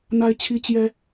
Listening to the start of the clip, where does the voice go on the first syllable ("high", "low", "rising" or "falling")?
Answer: high